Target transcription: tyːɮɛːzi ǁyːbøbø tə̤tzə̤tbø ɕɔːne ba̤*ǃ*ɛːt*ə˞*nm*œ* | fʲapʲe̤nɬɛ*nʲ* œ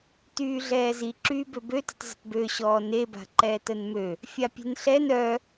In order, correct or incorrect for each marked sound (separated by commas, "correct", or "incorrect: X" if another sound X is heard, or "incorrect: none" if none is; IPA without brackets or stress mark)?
correct, incorrect: ə, incorrect: ø, incorrect: n